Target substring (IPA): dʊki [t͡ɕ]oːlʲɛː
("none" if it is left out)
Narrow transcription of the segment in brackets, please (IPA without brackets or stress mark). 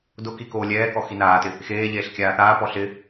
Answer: k